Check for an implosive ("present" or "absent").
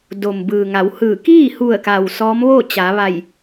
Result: absent